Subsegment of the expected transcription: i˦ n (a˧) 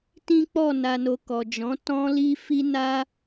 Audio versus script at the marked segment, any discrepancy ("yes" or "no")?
yes